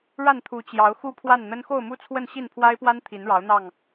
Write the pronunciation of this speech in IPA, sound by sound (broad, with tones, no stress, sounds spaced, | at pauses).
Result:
ɻ a˥˨ n t̪ʰ u˨˦ t͡ɕ j ɑ˨˦ ʊ̯ x u˦ pʰ w a˥˨ n n̪ ə˦ n x o˥˨ ʊ̯ m u˦ t͡sʰ w ə˥˨ n ɕ i˥˨ n pʰ w a˦ ɪ̯ p w a˦ n t̪ʰ i˨˦ n ɻ ɑ˨˦ ʊ̯ n̪ ɑ˥˨ ŋ